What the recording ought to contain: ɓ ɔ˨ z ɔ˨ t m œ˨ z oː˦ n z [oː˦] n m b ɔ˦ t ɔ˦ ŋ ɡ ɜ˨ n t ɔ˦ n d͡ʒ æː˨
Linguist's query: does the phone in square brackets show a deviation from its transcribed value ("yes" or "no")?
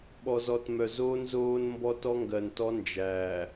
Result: no